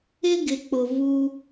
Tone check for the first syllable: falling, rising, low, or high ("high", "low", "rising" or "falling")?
high